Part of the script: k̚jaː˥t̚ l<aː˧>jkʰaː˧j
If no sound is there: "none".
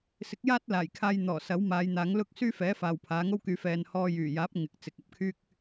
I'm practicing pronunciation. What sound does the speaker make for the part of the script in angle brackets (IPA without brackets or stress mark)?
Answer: aː˨˩